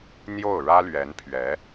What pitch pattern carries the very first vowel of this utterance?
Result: falling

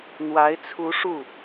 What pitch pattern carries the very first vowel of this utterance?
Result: rising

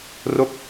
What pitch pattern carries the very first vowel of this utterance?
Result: falling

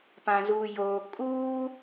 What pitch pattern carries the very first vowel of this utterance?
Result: low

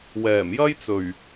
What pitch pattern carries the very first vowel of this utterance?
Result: low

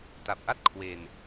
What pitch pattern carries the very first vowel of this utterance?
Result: low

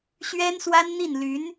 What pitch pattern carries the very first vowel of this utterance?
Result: high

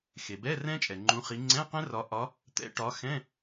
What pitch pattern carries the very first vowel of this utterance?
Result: low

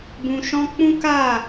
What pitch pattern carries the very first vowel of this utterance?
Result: low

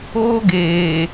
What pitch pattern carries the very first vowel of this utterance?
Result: high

